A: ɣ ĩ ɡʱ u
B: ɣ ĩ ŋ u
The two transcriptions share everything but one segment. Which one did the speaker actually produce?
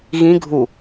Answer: A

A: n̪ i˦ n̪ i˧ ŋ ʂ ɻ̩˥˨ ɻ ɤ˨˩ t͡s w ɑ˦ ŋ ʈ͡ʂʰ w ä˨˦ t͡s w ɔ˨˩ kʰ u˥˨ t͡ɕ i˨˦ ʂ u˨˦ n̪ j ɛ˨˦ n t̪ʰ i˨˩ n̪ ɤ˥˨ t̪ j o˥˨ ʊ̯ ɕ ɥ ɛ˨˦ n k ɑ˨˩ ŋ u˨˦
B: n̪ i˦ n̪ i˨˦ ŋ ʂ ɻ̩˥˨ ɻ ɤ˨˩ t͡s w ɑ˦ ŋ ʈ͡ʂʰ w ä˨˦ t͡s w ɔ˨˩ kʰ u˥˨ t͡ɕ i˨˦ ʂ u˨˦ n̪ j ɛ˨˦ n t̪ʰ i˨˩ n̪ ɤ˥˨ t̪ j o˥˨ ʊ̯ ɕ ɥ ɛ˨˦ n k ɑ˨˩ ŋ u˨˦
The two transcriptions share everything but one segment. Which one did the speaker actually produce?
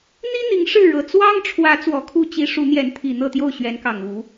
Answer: B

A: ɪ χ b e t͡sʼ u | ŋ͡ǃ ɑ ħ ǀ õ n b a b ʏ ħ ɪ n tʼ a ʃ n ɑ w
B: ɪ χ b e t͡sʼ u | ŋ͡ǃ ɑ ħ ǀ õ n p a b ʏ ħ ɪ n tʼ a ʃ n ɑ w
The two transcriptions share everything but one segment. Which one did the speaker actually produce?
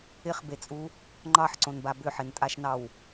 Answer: A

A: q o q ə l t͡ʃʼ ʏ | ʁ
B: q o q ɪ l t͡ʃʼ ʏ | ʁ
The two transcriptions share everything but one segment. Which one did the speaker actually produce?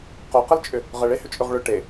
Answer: A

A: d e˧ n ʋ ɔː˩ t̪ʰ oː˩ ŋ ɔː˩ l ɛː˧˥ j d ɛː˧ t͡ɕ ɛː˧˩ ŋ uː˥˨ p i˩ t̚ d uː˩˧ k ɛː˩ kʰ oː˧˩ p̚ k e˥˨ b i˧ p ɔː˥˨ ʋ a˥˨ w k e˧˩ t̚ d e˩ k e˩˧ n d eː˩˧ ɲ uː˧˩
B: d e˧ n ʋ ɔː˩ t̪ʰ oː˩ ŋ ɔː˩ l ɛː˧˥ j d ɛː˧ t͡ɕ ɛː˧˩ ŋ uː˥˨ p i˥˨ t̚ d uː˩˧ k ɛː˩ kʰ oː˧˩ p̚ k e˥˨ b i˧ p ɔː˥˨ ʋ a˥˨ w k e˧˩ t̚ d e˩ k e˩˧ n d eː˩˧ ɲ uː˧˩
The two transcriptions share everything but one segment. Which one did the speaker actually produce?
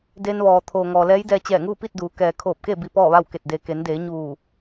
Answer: B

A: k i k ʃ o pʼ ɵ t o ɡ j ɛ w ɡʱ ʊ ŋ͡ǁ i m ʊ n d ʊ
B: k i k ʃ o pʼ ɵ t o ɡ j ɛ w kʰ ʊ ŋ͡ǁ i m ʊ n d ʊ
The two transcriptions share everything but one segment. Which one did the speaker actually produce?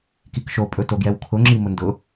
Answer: B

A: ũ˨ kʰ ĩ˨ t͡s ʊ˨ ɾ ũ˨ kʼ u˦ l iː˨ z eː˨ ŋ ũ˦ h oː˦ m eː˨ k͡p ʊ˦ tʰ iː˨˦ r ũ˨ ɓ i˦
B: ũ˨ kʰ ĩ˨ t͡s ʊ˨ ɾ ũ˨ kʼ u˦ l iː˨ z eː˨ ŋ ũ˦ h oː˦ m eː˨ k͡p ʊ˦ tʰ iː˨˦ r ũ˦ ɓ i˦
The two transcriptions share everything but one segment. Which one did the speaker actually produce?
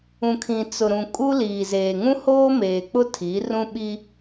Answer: B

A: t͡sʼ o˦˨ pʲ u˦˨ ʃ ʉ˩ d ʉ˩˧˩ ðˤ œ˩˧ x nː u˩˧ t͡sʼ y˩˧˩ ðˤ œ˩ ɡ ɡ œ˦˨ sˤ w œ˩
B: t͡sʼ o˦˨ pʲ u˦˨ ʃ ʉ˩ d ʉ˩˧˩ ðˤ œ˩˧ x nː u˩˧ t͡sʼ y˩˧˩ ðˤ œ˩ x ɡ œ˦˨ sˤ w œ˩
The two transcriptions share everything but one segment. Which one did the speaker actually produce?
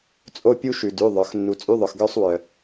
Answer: B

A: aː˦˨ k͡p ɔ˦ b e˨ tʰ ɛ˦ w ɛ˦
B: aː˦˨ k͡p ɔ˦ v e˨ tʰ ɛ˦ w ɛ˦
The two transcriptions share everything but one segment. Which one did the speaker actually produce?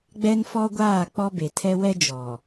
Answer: A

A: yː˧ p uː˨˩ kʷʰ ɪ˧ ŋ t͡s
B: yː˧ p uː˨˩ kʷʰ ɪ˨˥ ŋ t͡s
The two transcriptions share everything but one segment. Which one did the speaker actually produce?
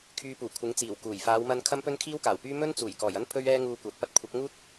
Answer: B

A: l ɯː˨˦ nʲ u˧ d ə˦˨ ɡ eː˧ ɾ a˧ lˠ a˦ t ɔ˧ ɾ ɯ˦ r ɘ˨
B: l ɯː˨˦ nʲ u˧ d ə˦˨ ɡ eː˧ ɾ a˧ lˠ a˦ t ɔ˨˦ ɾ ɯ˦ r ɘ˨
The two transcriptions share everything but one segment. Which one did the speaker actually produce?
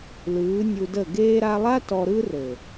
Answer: A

